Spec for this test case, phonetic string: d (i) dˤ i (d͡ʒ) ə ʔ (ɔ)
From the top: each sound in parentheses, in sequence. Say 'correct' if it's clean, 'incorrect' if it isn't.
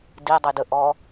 correct, incorrect: d, correct

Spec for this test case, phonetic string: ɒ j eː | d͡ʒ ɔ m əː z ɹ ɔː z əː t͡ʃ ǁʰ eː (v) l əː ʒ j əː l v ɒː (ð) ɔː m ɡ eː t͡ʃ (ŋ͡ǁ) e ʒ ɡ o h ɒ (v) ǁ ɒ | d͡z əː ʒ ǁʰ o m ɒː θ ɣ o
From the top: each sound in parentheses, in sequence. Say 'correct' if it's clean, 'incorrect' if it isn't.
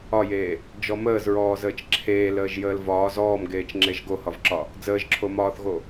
incorrect: none, incorrect: z, correct, correct

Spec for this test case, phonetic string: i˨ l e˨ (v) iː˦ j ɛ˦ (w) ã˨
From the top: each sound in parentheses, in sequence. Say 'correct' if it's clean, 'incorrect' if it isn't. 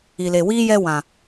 incorrect: w, correct

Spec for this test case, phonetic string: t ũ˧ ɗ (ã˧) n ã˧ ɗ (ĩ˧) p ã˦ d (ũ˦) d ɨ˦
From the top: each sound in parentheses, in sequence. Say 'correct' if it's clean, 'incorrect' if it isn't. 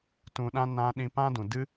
incorrect: ã˦, correct, incorrect: ũ˨

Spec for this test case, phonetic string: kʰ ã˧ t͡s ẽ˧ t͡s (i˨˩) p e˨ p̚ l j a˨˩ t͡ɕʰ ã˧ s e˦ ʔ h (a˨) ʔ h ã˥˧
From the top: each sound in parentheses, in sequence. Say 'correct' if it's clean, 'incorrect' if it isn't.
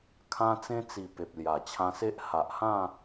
correct, correct

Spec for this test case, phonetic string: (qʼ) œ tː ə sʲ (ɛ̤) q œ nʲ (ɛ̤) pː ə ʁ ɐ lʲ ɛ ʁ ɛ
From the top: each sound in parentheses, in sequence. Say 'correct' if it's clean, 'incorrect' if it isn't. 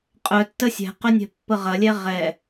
correct, correct, correct

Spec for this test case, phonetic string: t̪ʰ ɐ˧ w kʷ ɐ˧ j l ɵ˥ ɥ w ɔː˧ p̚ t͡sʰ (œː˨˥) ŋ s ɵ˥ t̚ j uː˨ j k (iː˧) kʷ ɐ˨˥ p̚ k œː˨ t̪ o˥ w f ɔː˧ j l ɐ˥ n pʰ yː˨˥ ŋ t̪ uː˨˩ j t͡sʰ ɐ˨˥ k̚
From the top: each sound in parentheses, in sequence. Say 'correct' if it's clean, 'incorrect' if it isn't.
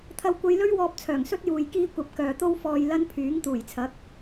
incorrect: œː˨˩, correct

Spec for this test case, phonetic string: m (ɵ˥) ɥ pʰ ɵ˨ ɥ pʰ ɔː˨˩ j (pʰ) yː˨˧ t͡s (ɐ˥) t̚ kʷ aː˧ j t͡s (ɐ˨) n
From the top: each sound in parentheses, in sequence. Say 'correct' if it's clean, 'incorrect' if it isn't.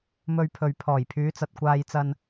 incorrect: ɵ˧, correct, incorrect: ɐ˨, incorrect: ɐ˧

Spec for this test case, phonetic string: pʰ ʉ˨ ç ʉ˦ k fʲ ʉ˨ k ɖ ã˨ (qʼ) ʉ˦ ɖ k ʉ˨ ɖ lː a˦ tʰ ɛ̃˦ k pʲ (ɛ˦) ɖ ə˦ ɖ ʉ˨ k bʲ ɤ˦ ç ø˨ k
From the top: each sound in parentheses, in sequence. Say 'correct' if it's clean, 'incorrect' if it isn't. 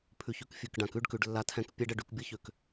incorrect: k, correct

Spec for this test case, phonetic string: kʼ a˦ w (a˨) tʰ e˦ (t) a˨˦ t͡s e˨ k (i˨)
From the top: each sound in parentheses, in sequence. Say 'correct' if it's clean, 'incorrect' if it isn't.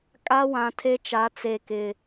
incorrect: ã˨, incorrect: t͡ʃ, incorrect: ɪ˨

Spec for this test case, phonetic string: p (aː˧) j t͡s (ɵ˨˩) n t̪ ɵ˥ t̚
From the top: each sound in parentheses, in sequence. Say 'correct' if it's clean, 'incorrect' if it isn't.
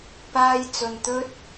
incorrect: aː˥, incorrect: ɵ˧

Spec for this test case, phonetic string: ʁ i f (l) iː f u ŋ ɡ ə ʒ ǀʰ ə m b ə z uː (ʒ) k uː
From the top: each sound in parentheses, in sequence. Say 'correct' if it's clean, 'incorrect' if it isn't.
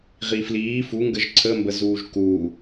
correct, correct

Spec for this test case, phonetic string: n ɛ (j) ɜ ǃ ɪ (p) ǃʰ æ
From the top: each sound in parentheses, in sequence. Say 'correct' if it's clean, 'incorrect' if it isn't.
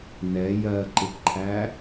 correct, correct

